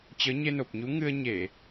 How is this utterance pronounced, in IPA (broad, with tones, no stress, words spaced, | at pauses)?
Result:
t͡ɕəː˨˦ɲe˧no˨˩p̚ɲu˨˦ ŋɨ˧ə̯ɲe˧˩˨